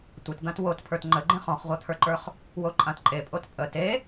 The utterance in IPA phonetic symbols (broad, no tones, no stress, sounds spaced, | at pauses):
tʷ ə t d̪ ã t w o t pʰ ə˞ t ŋ͡ǃ ə ɡ͡ǃ ẽ χ ɔ̃ χ ʁʷ a t̪ʰ ə˞ ǃ ə˞ χ | w o ǃʼ ã t ǃʼ e pʼ o t pʼ ə t e